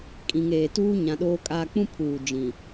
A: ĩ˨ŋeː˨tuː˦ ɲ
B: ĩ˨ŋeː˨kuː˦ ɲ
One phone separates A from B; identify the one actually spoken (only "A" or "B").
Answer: A